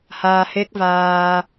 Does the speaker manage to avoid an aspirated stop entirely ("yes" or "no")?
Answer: yes